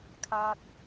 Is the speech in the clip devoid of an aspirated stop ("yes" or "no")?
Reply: no